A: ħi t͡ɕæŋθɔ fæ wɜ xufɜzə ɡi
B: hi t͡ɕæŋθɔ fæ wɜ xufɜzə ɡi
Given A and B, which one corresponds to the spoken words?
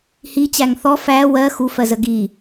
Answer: B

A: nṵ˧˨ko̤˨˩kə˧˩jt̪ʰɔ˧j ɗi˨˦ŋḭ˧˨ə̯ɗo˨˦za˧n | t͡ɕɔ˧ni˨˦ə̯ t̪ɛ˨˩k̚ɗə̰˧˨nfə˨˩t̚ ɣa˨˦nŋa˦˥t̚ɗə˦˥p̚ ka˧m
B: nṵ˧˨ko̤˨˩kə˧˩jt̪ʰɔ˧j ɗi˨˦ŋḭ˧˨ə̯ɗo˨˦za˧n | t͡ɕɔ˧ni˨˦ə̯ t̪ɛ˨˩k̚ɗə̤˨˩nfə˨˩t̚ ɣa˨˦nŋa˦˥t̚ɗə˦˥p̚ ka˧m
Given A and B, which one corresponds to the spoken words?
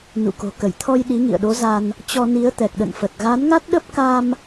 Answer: A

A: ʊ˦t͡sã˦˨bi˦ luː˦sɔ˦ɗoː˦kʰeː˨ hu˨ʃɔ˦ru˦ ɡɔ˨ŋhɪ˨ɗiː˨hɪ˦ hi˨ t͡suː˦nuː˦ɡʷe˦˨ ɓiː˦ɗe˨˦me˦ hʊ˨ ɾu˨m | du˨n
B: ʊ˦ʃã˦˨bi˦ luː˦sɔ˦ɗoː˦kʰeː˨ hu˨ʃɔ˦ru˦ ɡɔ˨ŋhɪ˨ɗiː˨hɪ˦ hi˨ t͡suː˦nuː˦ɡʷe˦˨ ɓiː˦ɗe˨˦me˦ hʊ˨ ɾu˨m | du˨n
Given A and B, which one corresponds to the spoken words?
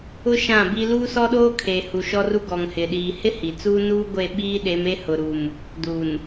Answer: B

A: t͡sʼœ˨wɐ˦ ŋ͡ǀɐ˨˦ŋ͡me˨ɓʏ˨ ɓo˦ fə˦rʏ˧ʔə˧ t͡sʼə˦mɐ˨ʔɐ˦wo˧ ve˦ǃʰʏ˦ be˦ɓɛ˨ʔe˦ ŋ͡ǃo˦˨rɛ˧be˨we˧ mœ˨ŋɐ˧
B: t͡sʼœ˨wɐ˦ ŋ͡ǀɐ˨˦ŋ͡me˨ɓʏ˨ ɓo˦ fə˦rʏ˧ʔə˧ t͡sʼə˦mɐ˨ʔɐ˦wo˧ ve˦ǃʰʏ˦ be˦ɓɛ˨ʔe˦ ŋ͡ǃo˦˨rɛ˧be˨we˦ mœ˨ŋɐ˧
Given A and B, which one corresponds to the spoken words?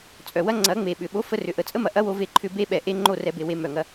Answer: A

